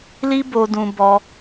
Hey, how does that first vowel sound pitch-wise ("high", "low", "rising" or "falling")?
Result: high